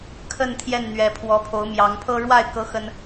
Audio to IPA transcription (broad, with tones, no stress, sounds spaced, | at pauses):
kʰ ə˥˨ n t̪ʰ j ɛ˥˨ n n̪ ɥ ɛ˨˦ pʰ w ɔ˨˦ pʰ o˨˦ ʊ̯ m j ɑ˨˦ ŋ pʰ ɤ˦ ɻ w a˥˨ ɪ̯ k ɤ˦ x ə˦ n